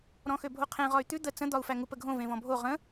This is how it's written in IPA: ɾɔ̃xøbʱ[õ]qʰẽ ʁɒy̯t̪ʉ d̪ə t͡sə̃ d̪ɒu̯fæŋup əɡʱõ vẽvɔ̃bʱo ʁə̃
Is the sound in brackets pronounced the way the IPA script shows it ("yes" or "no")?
no